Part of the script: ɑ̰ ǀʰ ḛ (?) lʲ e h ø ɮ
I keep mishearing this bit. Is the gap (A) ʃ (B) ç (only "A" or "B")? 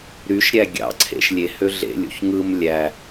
A